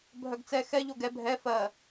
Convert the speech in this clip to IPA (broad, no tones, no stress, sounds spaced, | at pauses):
bʱ œ ɡ t͡s ɛ x ɛ ʎ o ɡ ɛ bʱ ɛ f ɜ